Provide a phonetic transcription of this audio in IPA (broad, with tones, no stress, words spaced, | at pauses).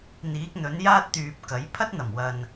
n̪iː˨˥k̚n̪ɵ˨˥njaː˥t̚ t̪yː˨p̚kɐ˨˥j pʰɐ˥t̚n̪ɐ˨˩mwɐ˨n